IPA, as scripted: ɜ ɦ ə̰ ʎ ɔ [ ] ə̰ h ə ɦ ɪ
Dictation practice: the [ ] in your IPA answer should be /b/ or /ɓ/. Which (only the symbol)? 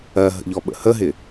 ɓ